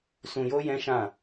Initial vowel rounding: rounded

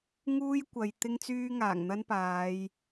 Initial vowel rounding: rounded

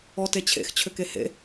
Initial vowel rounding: rounded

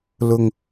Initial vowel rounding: rounded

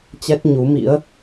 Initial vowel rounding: unrounded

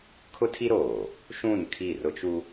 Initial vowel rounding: rounded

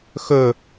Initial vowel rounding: rounded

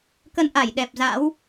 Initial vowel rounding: unrounded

